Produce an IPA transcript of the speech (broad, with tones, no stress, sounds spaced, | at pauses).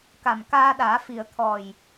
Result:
k a˨˩ m k aː˧ ɗ aː˨˩˦ f i˨˩ ə̯ t̪ʰ ɔ˨˩ j